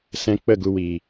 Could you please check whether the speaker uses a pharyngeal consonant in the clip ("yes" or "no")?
no